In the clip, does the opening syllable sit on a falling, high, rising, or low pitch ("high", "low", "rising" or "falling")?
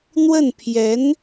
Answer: falling